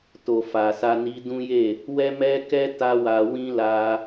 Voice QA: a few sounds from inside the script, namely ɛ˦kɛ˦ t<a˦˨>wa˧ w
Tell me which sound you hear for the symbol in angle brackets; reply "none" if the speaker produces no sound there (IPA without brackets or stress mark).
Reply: a˦